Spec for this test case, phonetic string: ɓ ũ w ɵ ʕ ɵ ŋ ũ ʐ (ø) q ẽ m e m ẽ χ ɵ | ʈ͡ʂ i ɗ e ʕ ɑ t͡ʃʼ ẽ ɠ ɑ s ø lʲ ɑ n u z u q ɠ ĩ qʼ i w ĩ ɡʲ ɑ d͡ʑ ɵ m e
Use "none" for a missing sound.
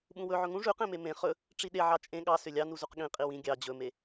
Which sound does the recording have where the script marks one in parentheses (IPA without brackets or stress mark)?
ʉ